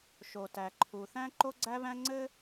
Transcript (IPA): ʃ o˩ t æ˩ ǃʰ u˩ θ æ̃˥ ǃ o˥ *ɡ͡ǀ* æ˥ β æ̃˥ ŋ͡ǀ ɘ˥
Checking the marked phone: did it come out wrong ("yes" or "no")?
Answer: no